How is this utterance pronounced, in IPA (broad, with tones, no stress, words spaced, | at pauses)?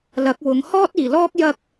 lɐ˨˥k̚ wʊ˨˧ŋ hɔː˥t̚iː˨˩lɔː˥k̚ jɐ˥k̚